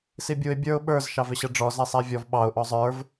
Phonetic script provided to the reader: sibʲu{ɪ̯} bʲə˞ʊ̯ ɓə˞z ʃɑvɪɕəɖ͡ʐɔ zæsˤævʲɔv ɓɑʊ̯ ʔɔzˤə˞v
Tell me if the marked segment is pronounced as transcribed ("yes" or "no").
yes